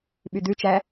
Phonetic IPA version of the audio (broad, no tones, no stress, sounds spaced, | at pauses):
ɓ y d̪ ʉ t͡ʃ æ